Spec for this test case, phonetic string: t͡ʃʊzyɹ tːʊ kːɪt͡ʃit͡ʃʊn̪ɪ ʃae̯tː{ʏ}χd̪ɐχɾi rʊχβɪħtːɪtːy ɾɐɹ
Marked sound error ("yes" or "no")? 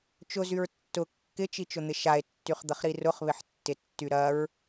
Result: yes